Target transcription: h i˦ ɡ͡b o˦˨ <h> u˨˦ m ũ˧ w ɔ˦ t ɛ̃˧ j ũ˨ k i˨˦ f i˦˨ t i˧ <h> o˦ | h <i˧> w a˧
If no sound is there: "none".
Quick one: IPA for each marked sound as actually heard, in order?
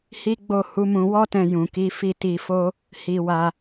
h, f, i˧

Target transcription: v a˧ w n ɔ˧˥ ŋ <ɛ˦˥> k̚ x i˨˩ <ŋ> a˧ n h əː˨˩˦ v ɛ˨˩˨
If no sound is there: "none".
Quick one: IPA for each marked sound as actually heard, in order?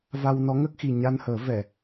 ə˦˥, ɲ

